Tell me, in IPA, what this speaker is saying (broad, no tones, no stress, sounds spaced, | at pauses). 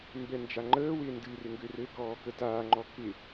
m b ɛ n d͡ʒ a ŋ͡ǃ əː w ɪː n d ɨ r ɪ ŋ ɡ ø r ɘ k ɔː k ə t aː ŋ͡ǃ ɔ k ɪ